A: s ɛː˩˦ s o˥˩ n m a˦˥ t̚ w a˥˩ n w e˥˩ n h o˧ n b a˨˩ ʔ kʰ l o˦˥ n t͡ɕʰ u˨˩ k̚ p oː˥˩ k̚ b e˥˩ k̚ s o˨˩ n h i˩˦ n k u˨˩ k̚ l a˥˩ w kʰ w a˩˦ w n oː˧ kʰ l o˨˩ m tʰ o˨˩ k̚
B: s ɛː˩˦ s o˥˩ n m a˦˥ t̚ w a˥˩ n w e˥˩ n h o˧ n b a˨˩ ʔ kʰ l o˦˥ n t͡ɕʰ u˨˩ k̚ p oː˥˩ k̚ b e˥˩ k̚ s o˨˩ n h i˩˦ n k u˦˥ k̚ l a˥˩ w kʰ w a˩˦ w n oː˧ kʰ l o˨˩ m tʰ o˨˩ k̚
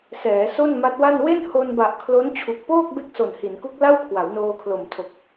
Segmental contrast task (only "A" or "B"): B